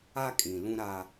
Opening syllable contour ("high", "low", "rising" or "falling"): high